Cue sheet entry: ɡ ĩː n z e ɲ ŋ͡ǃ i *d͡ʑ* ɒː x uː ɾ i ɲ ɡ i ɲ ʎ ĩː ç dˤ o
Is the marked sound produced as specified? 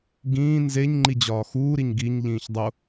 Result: yes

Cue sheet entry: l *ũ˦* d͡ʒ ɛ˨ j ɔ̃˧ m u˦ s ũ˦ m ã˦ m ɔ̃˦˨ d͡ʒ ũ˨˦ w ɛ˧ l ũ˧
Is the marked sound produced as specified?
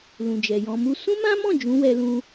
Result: no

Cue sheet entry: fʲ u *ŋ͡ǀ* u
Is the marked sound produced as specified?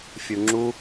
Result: no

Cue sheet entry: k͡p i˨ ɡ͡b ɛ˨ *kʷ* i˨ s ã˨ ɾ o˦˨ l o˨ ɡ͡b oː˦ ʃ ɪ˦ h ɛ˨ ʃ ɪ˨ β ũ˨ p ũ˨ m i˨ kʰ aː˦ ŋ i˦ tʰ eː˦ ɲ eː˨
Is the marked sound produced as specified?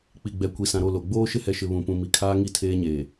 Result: yes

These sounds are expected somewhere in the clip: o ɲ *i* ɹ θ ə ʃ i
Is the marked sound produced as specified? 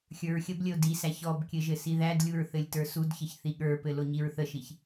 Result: yes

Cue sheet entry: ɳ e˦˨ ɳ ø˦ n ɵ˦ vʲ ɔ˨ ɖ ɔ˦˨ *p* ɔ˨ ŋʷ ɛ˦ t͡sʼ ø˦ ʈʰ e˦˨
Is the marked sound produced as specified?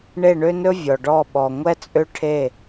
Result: no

